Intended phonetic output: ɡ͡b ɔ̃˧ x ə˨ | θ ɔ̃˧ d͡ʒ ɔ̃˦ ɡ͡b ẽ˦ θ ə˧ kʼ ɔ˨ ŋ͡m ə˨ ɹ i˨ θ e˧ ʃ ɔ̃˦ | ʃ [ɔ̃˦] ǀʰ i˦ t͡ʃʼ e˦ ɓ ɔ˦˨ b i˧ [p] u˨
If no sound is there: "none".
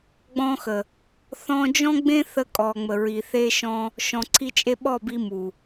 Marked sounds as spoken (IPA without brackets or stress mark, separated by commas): ɔ̃˧, m